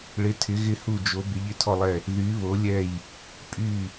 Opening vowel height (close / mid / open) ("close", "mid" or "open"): close